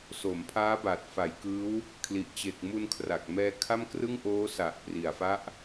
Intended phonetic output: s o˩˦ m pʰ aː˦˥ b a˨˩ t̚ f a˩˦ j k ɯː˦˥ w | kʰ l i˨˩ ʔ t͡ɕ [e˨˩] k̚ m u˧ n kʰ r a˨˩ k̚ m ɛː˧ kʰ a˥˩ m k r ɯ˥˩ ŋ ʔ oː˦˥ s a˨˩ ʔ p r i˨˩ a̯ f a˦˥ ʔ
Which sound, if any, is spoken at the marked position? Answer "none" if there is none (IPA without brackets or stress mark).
e˨˩